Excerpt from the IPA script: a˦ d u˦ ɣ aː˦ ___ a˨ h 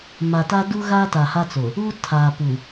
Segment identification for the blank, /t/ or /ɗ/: t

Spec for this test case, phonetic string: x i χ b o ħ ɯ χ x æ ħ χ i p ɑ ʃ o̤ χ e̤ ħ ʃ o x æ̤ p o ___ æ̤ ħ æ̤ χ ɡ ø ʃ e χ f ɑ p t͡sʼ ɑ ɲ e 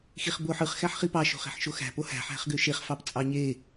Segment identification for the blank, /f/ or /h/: h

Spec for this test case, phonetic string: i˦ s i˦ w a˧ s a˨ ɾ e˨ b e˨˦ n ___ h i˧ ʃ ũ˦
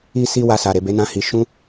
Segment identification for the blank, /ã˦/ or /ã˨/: ã˦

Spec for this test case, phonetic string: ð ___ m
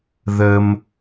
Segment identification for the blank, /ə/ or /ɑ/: ə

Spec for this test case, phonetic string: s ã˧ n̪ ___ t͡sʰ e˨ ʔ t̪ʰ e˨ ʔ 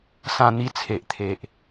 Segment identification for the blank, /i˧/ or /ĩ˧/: i˧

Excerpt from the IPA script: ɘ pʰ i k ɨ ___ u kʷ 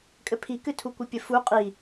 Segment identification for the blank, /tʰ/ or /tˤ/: tʰ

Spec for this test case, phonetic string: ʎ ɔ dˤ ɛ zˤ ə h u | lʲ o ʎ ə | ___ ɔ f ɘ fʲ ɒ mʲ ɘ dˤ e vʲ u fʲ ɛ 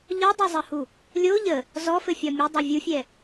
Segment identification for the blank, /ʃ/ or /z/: z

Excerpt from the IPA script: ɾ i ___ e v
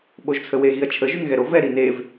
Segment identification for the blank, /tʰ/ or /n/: n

